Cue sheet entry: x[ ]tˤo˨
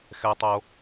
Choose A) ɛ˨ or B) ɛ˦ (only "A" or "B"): A